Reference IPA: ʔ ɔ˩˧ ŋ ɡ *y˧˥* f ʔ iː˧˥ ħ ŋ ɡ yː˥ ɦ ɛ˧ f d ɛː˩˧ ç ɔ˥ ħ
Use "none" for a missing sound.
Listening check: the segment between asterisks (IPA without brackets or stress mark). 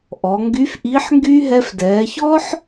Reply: y˧˥